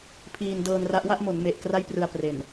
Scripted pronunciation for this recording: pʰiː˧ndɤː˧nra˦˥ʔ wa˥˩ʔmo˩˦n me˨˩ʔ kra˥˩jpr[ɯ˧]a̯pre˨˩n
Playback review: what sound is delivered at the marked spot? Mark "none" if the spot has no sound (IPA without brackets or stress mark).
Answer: ɯ˧